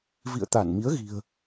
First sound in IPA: v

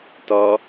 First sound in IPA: t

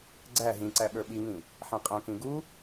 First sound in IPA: ɡ͡ǀ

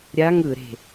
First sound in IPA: ɾʲ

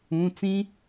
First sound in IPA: ũ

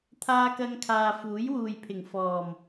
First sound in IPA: t̪ʰ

